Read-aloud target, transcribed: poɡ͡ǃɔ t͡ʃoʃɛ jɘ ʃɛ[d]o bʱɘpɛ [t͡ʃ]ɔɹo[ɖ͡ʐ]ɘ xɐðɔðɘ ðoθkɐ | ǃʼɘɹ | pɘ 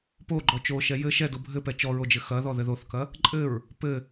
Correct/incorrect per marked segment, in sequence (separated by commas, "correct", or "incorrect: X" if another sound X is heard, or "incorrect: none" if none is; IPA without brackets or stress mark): correct, correct, incorrect: d͡ʒ